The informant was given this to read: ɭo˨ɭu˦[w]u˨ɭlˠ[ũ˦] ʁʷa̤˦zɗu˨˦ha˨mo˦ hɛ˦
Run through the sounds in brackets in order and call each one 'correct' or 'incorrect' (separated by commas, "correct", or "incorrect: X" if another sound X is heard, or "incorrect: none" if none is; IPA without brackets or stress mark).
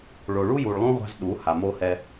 incorrect: j, correct